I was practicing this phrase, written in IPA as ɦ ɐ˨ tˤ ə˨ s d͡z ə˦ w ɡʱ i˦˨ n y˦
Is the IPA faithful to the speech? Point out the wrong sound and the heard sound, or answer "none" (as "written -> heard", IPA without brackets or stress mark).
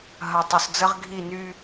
w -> ʁ